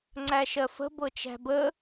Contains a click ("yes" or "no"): yes